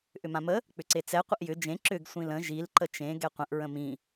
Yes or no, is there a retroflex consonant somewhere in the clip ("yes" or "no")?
no